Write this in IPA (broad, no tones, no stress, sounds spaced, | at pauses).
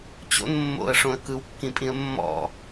t͡ɕ o̰ n mː o̰ ə̯ ʂ õ ə̯ k ɯ w kː ĩ pʼ ĩ ə̯ mː ɔ̰